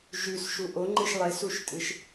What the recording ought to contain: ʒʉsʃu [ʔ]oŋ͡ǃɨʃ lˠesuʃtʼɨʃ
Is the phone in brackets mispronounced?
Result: no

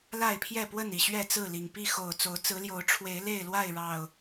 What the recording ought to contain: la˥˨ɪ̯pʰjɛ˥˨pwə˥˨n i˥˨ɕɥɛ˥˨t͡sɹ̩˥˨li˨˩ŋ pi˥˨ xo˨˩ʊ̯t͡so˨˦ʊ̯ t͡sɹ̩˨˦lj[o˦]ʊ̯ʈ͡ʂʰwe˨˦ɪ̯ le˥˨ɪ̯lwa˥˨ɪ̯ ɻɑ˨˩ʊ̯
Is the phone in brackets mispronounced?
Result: yes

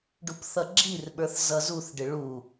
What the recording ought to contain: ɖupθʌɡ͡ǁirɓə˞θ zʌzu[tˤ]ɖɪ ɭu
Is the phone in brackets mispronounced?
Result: yes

